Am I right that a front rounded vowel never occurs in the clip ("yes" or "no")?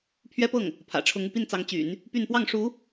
no